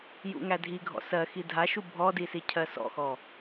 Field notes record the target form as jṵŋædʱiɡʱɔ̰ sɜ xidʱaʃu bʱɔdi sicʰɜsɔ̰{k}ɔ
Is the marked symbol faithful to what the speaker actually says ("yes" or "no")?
no